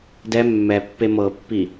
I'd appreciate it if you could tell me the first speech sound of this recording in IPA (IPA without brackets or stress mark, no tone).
d